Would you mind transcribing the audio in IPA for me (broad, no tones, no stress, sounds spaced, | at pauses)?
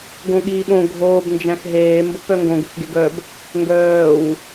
ɡ õ ɠ iː ɓ õ ɡʱ oː b n d͡ʒ æ̃ x ɦ eː m b o p œ ŋ ɡ õ ɡ ʏ x ɡ e ɡ œ b | ŋ ɡ œː w